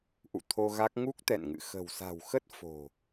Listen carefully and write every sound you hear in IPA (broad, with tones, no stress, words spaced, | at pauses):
ʔṵ˧˨t̪ʰo˧ɣa˦˥k̚ ŋu˦˥k̚t̪ɛ̰˧˨nŋɨ̰˧˨ xə̤˨˩wsa̤˨˩wxə˦˥t̚ fo̤˨˩